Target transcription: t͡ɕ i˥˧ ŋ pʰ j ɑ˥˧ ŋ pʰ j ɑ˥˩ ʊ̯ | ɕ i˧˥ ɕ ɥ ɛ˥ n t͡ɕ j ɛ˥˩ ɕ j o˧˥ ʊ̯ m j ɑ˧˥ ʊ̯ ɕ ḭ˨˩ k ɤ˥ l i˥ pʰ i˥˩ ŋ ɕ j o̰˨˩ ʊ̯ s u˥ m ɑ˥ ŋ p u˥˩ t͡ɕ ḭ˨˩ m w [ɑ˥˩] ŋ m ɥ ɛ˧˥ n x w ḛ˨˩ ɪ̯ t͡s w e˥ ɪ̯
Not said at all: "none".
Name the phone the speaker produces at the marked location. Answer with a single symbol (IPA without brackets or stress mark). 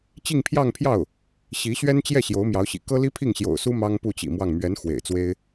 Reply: ɑ˥˩